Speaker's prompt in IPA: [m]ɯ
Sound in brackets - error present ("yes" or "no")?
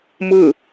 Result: no